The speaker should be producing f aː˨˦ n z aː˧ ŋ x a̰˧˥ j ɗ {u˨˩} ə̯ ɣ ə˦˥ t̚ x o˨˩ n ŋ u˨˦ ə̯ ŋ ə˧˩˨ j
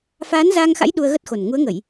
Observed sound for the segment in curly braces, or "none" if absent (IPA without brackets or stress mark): u˧